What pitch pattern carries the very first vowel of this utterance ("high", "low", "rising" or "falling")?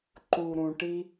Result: low